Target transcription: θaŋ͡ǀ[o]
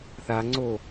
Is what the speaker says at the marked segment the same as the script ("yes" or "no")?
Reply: yes